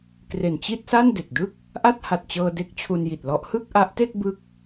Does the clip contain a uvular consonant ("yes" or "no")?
no